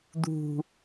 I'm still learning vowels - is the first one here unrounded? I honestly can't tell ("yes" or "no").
no